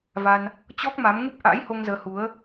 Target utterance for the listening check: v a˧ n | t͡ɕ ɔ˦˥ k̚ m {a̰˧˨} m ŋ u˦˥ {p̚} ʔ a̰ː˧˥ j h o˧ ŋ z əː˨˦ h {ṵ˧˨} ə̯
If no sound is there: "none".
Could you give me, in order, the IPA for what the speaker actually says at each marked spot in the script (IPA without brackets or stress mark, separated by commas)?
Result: a˨˦, p̚, u˨˦